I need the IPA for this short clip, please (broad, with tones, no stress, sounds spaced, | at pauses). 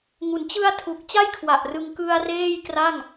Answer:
ŋ u˩˦ n t͡ɕ ɯ˧ a̯ tʰ u˨˩ k̚ t͡ɕ a˥˩ j kʰ w a˨˩ ʔ r ɯ˧ ŋ k ɯ˧ a̯ r eː˥˩ j k r a˥˩ ŋ